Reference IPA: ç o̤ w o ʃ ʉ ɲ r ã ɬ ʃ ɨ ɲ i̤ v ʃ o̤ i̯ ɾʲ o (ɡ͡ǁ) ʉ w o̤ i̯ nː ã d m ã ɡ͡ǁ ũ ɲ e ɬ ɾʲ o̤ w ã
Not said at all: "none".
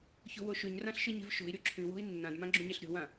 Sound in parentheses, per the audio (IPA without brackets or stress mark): ǁʰ